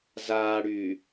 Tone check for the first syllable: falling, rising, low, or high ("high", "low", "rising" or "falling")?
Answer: low